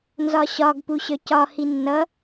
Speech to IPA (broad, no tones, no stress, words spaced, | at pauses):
nzɒɕɒɡ puɕœcɒ hinːʌ